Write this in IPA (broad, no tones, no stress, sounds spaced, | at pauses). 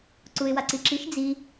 ǀ u ɪ̯ w a ǀ i ǁ i ʃ d͡z i